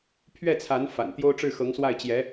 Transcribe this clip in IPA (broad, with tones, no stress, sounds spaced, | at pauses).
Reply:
pʰ ɥ ɛ˥˩ t͡sʰ a˧˥ n f a̰˨˩ n t̪ j o˥ ʊ̯ ʈ͡ʂ ɻ̩˥˩ x ɤ˧˥ ŋ s w a˥˩ ɪ̯ t͡ɕ j ɛ˧˥